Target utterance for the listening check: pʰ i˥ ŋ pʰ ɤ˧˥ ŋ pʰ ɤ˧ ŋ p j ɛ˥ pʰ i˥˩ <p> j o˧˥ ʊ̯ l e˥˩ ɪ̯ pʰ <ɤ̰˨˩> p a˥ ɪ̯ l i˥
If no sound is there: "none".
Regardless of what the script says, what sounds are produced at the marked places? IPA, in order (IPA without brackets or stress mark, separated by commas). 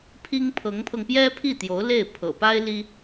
t̪, ɤ̰˨˩